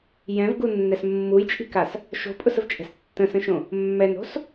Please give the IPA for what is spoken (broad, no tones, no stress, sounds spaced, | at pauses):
j ɛ̃ v ɡ u nː ɛ s mː u j t͡ʃʼ i̤ k a s | ʃ o̤ pʼ ʊ s ə v t͡ʃʼ ɛ̤ s tː ə̃ s ə̃ ʃ õ | mː ɛ n o̤ s